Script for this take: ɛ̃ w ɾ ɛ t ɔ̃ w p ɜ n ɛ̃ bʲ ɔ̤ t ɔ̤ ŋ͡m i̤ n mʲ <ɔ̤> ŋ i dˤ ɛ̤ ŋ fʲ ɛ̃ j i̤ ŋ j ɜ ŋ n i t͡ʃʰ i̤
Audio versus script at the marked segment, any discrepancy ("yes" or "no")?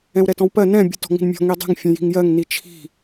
no